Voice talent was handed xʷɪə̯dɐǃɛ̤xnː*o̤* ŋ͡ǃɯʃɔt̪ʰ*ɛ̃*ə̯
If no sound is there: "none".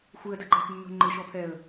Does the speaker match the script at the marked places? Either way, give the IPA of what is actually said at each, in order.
o̤, ɛ

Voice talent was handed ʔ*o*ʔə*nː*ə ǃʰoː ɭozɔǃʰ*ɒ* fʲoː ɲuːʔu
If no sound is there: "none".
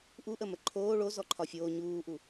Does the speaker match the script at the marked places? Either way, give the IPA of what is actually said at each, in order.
u, m, ɒ

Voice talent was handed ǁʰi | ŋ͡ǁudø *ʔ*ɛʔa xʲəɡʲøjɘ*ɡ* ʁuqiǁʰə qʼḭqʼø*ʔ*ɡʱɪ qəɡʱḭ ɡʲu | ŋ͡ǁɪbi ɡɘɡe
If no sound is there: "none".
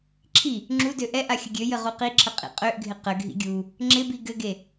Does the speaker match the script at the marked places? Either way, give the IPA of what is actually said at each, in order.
ʔ, none, ʔ

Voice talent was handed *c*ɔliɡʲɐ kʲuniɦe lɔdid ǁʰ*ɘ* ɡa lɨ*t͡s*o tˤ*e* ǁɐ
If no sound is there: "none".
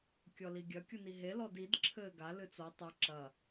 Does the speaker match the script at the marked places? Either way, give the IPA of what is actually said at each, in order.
kʲ, ɘ, t͡s, ɨ

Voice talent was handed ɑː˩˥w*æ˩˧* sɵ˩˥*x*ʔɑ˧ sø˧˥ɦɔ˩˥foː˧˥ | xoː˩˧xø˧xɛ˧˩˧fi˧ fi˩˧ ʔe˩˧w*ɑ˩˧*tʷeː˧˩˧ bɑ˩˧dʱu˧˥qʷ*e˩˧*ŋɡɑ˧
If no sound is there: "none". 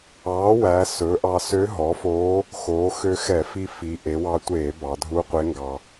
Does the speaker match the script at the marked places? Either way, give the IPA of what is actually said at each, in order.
æ˩˧, none, ɑ˧, e˧˥

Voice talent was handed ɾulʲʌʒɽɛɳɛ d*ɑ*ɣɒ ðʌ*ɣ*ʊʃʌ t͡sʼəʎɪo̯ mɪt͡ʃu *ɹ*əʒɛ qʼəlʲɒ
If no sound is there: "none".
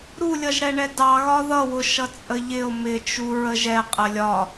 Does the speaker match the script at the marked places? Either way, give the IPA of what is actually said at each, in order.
ɑ, w, ɹ

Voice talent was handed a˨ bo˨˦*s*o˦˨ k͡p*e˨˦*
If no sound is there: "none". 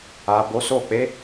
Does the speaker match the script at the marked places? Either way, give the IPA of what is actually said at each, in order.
s, e˨˦

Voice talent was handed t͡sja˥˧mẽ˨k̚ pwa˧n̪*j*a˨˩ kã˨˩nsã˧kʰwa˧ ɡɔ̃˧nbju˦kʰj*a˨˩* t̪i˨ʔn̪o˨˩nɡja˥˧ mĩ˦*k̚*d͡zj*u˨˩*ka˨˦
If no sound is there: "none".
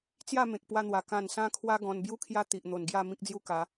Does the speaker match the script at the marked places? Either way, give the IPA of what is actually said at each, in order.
w, a˦, k̚, u˦

